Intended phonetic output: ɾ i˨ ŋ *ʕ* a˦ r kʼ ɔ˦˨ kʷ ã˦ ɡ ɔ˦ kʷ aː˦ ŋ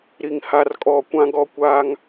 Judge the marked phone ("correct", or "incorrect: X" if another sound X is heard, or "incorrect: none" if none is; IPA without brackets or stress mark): incorrect: h